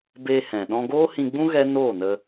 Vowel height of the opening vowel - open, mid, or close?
mid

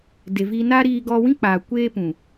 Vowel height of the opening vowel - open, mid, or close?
mid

